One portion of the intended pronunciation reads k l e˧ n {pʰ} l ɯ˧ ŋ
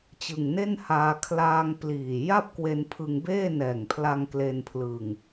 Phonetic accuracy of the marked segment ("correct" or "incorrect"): correct